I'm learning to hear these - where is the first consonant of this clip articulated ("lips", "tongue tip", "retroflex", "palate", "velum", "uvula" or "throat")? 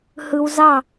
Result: throat